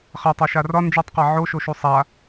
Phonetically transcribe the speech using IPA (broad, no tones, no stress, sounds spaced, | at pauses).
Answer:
χ a tˤ ɛ ʃ a r ɒ n d͡ʒ u tˤ q a ʕ o ʃ o ʃ u sˤ a